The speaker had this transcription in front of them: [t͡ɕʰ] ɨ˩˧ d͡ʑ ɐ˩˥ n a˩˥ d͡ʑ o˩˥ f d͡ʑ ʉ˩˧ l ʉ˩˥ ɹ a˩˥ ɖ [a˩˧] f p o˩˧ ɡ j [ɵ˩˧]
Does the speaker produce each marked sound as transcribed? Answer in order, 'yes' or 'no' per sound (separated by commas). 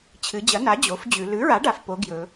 yes, yes, yes